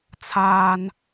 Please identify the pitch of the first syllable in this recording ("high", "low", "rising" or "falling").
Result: high